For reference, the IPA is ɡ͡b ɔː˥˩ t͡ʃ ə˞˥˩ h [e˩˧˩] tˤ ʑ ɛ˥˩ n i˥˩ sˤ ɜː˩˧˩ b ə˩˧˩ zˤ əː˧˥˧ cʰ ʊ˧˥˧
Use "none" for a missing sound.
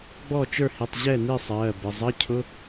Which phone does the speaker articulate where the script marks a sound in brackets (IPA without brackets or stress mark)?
i˩˧˩